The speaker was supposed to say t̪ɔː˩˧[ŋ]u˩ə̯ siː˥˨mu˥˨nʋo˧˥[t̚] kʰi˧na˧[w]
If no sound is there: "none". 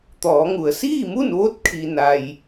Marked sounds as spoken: ŋ, t̚, j

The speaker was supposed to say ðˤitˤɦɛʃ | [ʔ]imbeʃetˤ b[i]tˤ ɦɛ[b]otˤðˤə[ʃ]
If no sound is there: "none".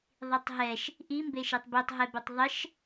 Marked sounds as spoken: ʔ, i, b, ʃ

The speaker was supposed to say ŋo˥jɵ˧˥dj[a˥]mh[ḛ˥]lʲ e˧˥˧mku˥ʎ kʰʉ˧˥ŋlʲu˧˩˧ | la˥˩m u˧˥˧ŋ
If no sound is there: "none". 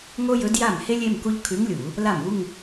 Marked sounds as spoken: a˥˩, e˥

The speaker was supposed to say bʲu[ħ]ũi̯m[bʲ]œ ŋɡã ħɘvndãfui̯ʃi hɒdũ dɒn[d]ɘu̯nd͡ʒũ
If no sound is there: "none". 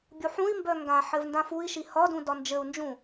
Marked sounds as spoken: ħ, b, d͡ʒ

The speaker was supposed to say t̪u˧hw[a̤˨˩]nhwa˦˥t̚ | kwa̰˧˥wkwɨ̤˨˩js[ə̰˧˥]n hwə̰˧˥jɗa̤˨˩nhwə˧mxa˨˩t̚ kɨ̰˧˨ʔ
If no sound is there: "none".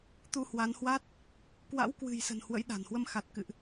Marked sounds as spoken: a˨˦, ə̤˨˩

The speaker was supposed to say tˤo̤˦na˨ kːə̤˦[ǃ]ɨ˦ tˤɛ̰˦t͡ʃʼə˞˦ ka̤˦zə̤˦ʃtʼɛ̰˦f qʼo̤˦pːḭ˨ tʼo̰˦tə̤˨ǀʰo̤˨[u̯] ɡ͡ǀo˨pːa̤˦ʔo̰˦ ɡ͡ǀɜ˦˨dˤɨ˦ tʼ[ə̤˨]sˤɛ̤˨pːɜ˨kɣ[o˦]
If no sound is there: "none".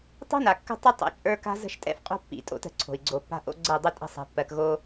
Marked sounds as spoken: tˤ, i̯, ə̤˦˨, o˦

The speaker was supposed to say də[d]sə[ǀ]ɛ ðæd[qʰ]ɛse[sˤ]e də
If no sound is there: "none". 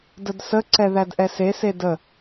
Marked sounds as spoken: d, ǀ, ʔ, s

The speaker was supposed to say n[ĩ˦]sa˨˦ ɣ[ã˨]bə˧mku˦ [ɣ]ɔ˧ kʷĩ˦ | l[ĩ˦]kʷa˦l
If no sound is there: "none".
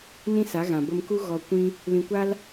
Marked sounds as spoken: ĩ˦, ã˨, ɣ, ĩ˧

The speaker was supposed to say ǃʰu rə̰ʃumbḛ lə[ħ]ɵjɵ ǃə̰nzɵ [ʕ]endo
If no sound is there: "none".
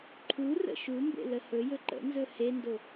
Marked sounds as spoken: h, h

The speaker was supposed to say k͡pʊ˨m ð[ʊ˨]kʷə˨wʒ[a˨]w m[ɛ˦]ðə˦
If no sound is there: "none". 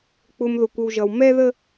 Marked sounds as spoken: ʊ˨, ʌ˨, ɛ˦

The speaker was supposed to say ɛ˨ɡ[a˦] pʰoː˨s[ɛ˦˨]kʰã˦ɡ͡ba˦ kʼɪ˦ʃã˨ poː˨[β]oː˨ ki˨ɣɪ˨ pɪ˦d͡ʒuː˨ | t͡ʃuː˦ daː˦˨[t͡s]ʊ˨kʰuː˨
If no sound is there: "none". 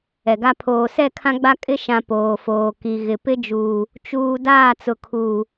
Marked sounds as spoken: a˦, ɛ˦˨, f, t͡s

